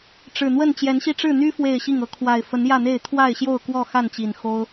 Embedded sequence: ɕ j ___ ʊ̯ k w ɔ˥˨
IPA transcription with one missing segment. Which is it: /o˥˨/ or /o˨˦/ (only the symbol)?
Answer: o˥˨